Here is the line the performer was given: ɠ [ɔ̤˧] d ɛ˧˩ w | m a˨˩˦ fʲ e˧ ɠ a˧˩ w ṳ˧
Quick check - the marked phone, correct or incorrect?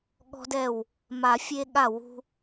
correct